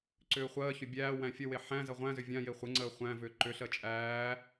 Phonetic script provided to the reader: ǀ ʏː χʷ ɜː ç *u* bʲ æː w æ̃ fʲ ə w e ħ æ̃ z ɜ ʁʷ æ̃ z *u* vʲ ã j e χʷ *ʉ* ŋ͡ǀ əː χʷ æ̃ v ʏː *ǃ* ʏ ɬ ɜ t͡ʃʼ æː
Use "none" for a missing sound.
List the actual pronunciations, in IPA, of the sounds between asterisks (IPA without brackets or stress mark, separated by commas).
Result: ʏ, ʏ, ɘ, ǃ